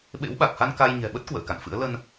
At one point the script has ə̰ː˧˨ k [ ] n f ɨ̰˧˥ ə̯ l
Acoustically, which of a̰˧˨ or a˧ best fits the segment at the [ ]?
a̰˧˨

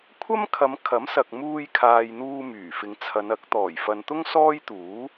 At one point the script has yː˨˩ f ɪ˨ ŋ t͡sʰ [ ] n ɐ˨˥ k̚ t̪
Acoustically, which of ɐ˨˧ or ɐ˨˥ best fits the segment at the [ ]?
ɐ˨˧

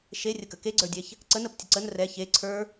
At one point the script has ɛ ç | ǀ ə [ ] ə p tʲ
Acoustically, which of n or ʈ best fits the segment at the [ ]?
n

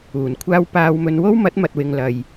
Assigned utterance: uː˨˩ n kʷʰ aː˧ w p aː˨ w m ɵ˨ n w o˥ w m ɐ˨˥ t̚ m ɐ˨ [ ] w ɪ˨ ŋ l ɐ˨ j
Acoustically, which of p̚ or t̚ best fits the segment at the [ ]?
t̚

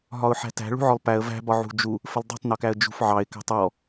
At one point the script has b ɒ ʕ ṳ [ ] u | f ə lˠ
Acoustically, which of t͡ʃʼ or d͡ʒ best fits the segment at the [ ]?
d͡ʒ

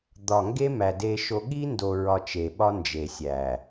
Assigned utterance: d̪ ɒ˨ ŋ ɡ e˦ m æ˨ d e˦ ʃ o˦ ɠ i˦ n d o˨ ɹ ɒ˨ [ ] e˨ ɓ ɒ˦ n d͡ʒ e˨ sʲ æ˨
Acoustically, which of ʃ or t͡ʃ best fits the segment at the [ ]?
t͡ʃ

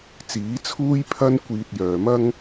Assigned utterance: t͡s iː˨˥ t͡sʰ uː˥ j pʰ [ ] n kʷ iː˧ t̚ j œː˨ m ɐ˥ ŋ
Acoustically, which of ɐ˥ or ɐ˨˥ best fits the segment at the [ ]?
ɐ˥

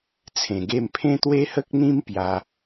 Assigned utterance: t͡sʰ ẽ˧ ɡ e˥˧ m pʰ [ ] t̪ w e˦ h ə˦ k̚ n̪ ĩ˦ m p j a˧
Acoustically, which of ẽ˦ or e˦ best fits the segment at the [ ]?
ẽ˦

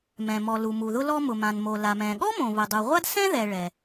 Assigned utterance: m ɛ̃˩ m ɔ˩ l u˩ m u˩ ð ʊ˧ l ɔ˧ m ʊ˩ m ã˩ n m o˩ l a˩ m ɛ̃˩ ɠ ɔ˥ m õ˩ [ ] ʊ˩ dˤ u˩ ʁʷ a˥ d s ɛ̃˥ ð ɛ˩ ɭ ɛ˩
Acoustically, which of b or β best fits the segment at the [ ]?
β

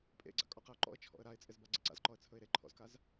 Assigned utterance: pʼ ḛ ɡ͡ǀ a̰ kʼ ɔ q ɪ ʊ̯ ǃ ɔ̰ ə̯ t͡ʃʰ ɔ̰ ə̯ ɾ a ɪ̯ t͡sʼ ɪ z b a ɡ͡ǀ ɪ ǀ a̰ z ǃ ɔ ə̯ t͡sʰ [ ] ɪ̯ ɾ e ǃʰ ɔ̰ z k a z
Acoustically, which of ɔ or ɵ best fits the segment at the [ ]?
ɵ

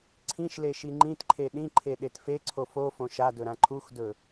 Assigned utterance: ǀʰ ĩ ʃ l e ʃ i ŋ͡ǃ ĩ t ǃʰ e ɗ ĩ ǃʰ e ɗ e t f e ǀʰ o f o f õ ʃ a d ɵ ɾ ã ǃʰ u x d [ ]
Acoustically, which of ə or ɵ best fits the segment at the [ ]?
ɵ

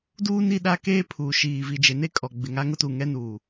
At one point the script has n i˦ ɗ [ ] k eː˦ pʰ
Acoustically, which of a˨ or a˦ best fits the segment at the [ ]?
a˦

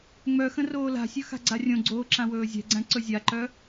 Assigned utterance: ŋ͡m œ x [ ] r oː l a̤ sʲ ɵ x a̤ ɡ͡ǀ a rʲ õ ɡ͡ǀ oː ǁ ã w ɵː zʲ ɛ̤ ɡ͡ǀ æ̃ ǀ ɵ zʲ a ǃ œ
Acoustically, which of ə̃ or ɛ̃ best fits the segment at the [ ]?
ə̃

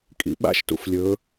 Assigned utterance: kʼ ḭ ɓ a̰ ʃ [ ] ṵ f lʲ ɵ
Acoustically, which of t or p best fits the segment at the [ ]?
t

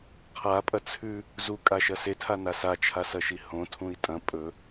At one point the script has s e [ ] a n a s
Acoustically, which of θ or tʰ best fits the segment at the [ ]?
tʰ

